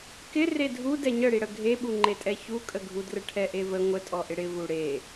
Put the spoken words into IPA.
k ɪ r e dʱ u d ɛ ɲ ə ɽ i ɽ ə ɡʱ e ɓ u ŋ͡ǃ e tʼ ɛ ç u kʼ ə ɡʱ u d r ə ʈʰ ɛ ʔ e v ə ŋʷ ə tʼ ɔ ʔ ɪ ɽ ɪ v u ɽ e

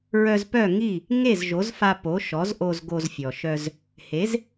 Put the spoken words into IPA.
ɹ œ˧ z p œ˥˩ ŋ i˥˩ | ŋ e˥˩ z ʒ o˩˥ z f a˧ p o˩˥ ʃ ɔ˩˥ z ʔ o˧ z ɡ o˧ z fʲ ɔ˩ ʃ œ˧ z | h e˩˥ z

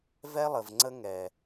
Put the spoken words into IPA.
v ɛ˦ lˠ ə˨ v ŋ͡ǀ ə˦ ŋ ɛ˨

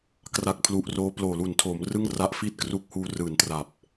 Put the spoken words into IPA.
k r a˦˥ k̚ pʰ l u˨˩ ʔ r oː˦˥ p l oː˨˩ l u˨˩ n tʰ oː˩˦ m r ɯ˥˩ ŋ r a˦˥ ʔ f iː˥˩ t̚ k r u˦˥ k̚ h uː˧ r ɯː˨˩ n t r a˨˩ p̚

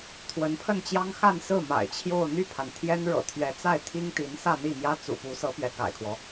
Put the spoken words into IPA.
t̪ʰ w ə˧˥ n pʰ ə˥˩ n t͡ɕ j ɑ˥ ŋ x a˥˧ n s ɹ̩˥˩ m a̰˨˩ ɪ̯ t͡ɕʰ j o˥˧ ʊ̯ n̪ y˥˩ pʰ a˩ n t̪ʰ j ɛ˥ n ɻ ɤ̰˨˩ t̪ʰ ɥ ɛ˧˥ t͡s a˥˩ ɪ̯ t̪ʰ i˥ ŋ t̪ i˧˥ n s ä˥˧ n̪ i˥˩ m j ä˥ t͡s ṵ˨˩ p u˧˥ s ɤ˧˥ p ɥ ɛ˧˥ k a̰˨˩ ɪ̯ kʰ w ɔ˦

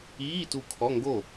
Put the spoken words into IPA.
iː˧˥˧ t u˧˩ kʰ ɔ˧˥˧ ŋ ɡ o˥˩

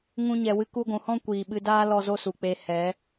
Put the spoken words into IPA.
ŋ ũ˧ ɲ ɛ˨ w ɨ˧ k u˧ ɡʷ ũ˨ h ɔ̃˦ kʷ iː˨ ɓ ɨ˧ d aː˦ l ɔ˧ z o˦ s u˨ k͡p e˧ h ɛ˨˦

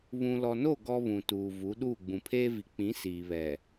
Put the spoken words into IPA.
β ũ˨ l ɔ˨ n o˦˨ ɡ ɔ˦ β ũ˨ t uː˨ v u˨˦ ɗ uː˦˨ ɡ͡b ũ˨ pʰ eː˦ v i˨ k͡p ĩ˨˦ s iː˨ β ɛ˨

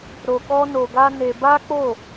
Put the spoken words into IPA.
ɾ o˧ k ɔ˦ n o˧ ɡ a˦ n e˧ b a˦ k͡p o˦˨

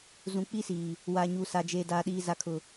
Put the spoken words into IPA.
z ũ˨˦ k͡p i˦ s iː˨ | w aː˨ ɲ uː˨ s a˨ d͡ʒ eː˨ d aː˨ ɗ iː˨ z a˨ kʰ ʊ˨

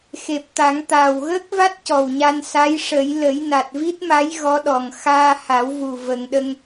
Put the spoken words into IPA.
x e˨˩ p̚ t̪ a˨˩˦ ŋ t̪ aː˨˩ w ɣ əː˦˥ k̚ v a˦˥ t̚ c ɔ˨˩ w ɲ a˧ n s a˧˥ j ʂ ə˨˩˦ j l ə˨˩˦ j n a˨˩ t̚ v i˦˥ t̚ m a˧˥ j ɣ ɔ˧˥ ɗ ɔ˨˩ ŋ x aː˧ h a˨˩˦ w v u˨˩ v ə˨˩˨ ŋ ɗ ə˧ ŋ

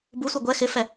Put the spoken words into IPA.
b u sʷ ɪ ɡʷ ɛ x ɪ f ɛ

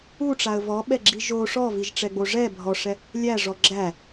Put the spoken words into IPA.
u ʈ͡ʂ a ə̯ v ɔ ɓ ɛ ɡ͡ǁ i ʒ o ʂ ɔ v i ʒ ʈ͡ʂ ɛ ɡ͡b o ʐ ɛ bʱ ɔ ʂ ɛ | lʲ æ ʐ ɔ ɡ͡ǁ æ

